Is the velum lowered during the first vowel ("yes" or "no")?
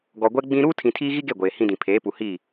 no